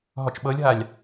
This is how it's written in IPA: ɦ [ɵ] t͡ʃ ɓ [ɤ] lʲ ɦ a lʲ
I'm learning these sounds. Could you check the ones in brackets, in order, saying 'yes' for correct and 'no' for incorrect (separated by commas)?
no, yes